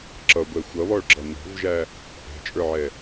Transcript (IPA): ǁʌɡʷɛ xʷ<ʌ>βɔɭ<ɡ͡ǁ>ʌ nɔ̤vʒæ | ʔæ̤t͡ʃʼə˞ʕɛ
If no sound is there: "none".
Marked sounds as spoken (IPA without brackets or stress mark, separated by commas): ʌ, ɡ͡ǁ